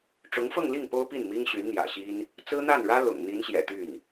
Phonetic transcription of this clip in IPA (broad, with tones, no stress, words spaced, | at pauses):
ʈ͡ʂʊ˧˥ŋfɤ˥˧ŋli˥˩ŋ po˥ʊ̯ pi˥˩nmi˥ŋɕy˧˥n n̪jä̰˨˩ɕi˥n | t͡sɹ̩˥n̪a˥˩nɻä˥ lʊ̰˨˩ŋ n̪i˧˥nɕjɛ̰˨˩ t̪y˥˩n